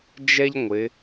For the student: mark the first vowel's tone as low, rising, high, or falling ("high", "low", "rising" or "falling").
high